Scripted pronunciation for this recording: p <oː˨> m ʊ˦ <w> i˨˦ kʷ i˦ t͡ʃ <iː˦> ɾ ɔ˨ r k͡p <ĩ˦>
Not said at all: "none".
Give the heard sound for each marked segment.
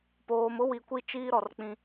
oː˨, w, iː˦, ĩ˦

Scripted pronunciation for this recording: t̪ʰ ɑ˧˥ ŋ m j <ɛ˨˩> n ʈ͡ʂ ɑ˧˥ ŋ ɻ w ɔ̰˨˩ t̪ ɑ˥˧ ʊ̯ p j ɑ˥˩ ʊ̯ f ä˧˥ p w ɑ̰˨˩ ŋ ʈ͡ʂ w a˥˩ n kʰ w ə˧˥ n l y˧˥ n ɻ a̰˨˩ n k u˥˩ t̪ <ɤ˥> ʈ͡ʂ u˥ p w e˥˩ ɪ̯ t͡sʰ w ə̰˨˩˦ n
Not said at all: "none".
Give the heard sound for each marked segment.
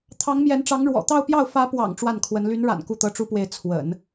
ɛ˧˥, ɤ˥

